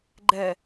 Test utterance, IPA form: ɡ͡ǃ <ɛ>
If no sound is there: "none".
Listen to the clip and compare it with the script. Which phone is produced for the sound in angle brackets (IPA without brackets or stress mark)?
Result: ɛ